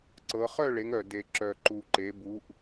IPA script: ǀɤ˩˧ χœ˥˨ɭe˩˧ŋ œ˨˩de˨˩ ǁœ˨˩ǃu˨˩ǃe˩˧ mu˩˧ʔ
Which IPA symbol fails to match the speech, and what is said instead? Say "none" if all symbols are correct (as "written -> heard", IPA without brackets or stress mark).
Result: m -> b